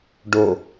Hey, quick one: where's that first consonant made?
retroflex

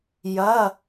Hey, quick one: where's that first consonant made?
palate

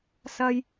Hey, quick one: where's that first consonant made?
tongue tip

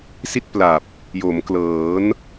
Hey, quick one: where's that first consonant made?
tongue tip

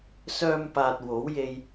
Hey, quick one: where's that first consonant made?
tongue tip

